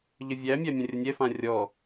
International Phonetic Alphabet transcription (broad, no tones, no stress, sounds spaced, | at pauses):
ʎ ə vʲ æ mʲ æ mʲ ɐ̃ rʲ ə nʲ ɛ f ã rʲ ɔ